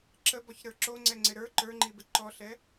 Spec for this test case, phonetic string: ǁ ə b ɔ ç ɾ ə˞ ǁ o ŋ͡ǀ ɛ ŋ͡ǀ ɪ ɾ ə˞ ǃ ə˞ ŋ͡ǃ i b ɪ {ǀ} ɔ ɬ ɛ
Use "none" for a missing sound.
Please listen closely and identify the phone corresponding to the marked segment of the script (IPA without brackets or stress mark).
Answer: ǃ